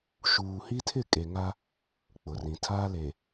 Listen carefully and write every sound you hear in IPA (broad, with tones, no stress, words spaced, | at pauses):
ʃuː˨hi˦tʰɪ˦˨ kʼe˨ŋa˦ | k͡pʊ˨rĩ˨ tʰa˦le˨